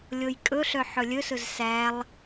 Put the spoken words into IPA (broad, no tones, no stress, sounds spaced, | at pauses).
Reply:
lʲ o j kʼ ɵ ɬ œ ħ ɵ lʲ ɵ s ɵ z s æ lˠ